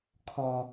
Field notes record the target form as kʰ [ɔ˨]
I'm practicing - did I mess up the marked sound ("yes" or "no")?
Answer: no